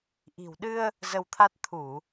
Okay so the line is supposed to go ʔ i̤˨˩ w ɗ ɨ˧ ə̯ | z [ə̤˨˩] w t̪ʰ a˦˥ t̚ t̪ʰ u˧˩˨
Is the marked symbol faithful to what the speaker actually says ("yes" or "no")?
no